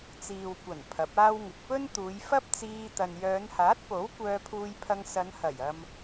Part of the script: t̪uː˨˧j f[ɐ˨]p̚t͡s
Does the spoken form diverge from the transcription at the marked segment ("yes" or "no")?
yes